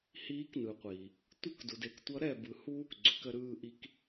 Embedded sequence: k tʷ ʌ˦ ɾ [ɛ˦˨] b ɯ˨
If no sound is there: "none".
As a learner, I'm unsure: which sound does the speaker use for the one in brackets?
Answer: ɛ˦˨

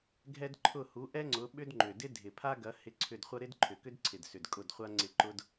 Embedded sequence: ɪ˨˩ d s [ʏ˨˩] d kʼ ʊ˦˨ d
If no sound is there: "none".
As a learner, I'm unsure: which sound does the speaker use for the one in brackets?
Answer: ʏ˨˩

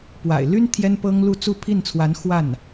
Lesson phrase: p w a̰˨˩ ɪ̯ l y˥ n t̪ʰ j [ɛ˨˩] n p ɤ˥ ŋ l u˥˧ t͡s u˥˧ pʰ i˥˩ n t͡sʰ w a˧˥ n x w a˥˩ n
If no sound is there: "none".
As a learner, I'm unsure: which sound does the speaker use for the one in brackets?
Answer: ɛ˥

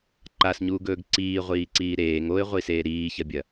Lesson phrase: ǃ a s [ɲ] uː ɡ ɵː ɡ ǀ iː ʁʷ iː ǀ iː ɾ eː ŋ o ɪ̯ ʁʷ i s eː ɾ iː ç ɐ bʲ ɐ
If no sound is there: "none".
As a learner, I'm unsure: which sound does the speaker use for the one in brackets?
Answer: ɲ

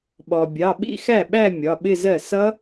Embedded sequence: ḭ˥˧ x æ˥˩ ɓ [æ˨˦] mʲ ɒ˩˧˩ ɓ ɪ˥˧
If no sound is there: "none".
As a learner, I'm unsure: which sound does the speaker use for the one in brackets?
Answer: æ˥˧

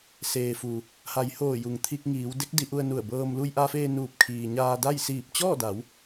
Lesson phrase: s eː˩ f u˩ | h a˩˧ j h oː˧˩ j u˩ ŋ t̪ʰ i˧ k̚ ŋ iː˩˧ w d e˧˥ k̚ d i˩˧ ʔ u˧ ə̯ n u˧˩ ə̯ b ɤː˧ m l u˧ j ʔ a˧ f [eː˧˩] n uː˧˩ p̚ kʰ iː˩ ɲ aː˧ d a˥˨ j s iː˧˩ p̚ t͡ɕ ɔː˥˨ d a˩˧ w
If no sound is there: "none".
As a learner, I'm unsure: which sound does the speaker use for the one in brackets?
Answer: eː˧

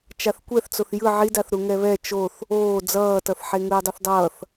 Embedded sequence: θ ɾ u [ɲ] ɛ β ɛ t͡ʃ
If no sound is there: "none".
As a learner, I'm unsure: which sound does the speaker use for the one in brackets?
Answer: ŋ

